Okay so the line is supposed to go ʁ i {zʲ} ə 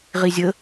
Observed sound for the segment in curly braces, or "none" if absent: zʲ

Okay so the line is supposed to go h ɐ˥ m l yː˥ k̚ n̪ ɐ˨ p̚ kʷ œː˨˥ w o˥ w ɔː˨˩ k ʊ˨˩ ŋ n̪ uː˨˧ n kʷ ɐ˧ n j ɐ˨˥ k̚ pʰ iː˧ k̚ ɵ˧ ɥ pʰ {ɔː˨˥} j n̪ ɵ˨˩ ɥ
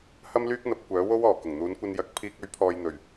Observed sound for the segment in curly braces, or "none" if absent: ɔː˨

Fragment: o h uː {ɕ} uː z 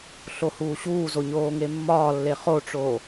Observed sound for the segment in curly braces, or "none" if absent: ɕ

